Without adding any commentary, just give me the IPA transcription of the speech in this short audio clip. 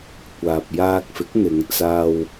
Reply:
kʷ aː˨ p̚ j aː˧ k̚ f ɪ˨˥ k̚ n̪ ɪ˨˧ ŋ t͡s aː˧ w

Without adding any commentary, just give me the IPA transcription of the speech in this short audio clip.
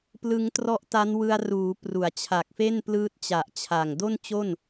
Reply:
p l ɯ˦˥ ŋ t r ɔ˦˥ ʔ t a˦˥ n w ɯ˧ a̯ r uː˩˦ p r u˩˦ a̯ t͡ɕʰ a˨˩ k̚ f e˥˩ n p l ɯː˦˥ t̚ t͡ɕ a˨˩ ʔ t͡ɕʰ a˨˩ ŋ d o˥˩ n t͡ɕ o˥˩ n

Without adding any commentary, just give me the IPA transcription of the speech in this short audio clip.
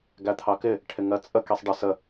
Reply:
ɡ æ t̪ʰ ɑ k ɪ | ʈʰ ɪ ŋ ɜ t͡sʼ ə k i sˤ ɖ ə s ə

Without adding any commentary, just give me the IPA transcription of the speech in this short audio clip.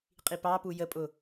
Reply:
qʼ i p ɑ p u j ə pʼ ʊ

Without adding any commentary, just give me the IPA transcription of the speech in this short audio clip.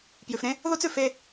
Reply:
p j ʉ˩ f ɾ ẽ˥ | ð u˥ t͡s ʉ˩ f e˥

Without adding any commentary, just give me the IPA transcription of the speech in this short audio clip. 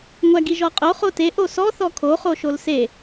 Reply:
ŋʷ æ ɡ i ʒ ɔ qʼ o χ o t e ʔ o s ɔ θ ɔ kʰ o χ o ʃ o l s e

